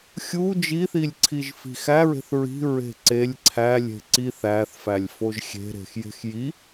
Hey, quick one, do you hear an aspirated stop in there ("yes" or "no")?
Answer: yes